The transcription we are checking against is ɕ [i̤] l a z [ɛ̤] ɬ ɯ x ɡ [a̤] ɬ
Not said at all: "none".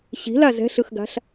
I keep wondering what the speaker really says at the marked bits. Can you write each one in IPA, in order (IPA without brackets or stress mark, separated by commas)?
i̤, ɛ̤, a̤